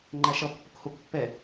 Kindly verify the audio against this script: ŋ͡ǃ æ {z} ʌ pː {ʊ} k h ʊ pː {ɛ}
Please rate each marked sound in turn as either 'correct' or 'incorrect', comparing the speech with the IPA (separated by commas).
incorrect, correct, correct